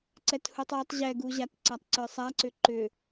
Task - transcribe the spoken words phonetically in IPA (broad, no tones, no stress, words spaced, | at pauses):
ǀɛthutˤwətˤ ʑɛɡuʑat ǀatˤǀə˞sˤaǀʏ ǃʏ